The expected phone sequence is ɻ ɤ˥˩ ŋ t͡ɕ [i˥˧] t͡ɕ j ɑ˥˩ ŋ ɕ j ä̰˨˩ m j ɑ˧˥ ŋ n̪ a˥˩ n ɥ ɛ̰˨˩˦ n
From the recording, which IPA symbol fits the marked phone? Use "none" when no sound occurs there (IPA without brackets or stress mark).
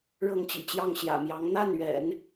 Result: ḭ˨˩